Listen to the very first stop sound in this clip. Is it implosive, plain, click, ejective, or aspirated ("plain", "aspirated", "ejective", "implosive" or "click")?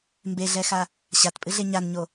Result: plain